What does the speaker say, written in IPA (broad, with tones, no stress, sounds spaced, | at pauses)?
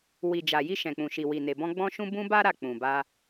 w i˨ d͡ʒ a˨ j i˧ ʃ ɛ̃˨ k͡p ũ˨ ʃ i˨ w i˨ n e˨ b ɔ̃˧ ɡ͡b ɔ̃˧ ʃ ũ˧ b ũ˧ b a˦ ɾ a˦˨ k͡p ũ˨ b a˧